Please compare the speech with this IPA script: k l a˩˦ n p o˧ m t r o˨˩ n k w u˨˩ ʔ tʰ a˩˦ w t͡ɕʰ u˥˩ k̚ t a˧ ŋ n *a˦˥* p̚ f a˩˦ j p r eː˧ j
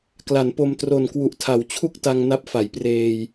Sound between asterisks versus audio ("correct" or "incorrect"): correct